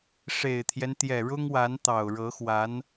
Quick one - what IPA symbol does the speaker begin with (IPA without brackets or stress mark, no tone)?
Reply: ʂ